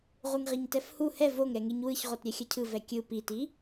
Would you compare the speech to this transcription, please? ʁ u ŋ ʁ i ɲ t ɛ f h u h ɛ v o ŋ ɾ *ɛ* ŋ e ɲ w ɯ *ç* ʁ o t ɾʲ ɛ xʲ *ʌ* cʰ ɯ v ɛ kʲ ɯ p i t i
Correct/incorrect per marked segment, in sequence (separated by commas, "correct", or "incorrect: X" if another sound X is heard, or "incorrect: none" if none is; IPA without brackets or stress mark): correct, correct, correct